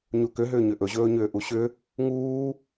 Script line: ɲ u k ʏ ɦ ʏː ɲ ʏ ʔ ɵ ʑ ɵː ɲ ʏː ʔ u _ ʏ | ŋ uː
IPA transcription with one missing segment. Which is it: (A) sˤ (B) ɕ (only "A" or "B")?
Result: B